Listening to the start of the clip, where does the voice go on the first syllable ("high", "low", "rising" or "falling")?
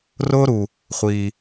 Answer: high